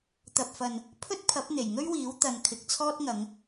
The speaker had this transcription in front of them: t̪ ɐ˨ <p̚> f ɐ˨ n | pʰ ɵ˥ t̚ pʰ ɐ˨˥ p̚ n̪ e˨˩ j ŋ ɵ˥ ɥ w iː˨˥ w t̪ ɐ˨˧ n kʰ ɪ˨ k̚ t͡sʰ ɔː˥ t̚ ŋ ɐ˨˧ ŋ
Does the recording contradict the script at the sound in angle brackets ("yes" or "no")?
no